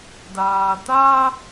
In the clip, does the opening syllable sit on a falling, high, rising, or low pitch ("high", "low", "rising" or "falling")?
low